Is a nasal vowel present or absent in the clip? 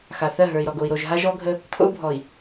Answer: absent